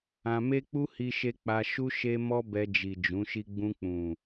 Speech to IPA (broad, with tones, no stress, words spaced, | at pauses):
ã˧me˦k͡pu˦ hi˦ʃe˦ k͡pa˧ ʃu˦ ʃe˦ mɔ˦bɛ˧d͡ʒi˨ d͡ʒũ˨˦ʃi˦ ɡ͡bũ˧k͡pũ˨